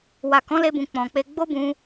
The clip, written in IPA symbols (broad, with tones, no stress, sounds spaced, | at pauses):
w a˨ k ɔ̃˨˦ l e˧ b ũ˨ k͡p ɔ̃˨ k͡p e˧ ɡ͡b o˦ b ũ˧